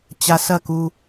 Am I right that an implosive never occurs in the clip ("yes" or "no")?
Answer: yes